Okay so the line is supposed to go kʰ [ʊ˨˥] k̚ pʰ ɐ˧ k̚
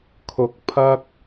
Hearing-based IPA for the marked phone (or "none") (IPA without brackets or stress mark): ʊ˨